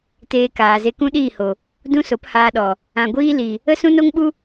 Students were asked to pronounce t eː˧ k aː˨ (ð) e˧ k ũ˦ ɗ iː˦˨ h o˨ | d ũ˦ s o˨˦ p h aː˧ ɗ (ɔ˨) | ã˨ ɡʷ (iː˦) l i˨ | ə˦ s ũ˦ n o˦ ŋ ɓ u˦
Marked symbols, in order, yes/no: no, yes, yes

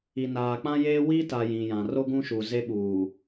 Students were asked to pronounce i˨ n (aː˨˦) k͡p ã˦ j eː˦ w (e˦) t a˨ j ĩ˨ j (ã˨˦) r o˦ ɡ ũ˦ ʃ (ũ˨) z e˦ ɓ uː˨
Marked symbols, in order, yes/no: no, no, no, no

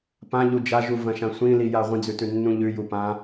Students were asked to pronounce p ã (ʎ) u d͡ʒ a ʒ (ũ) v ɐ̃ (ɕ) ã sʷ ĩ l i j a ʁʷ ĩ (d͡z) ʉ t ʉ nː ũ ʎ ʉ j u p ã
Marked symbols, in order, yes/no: yes, no, no, yes

